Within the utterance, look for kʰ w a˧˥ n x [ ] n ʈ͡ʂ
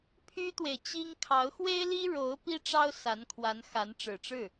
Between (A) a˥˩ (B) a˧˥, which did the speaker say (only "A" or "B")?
B